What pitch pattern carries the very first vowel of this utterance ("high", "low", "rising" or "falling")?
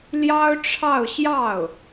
high